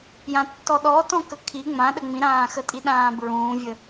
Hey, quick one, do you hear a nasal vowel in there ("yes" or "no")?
yes